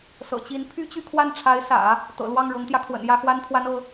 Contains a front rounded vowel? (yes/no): yes